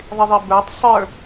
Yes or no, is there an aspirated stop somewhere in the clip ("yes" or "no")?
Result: no